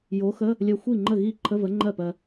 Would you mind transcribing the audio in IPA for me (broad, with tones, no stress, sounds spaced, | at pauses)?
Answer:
j o˨˥ x ə˧˥˧ | lʲ ɜ˧ xʷ i˥˩ ŋ͡ǃ ə˥˩ ɣ i˥˩ ǃʰ ə˧˥˧ v ə˨˥ ŋ͡ǃ ɜ˥˩ p ɜ˧